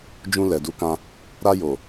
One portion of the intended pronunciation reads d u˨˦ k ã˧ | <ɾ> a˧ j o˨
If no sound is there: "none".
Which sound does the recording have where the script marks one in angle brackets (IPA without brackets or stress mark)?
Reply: ɾ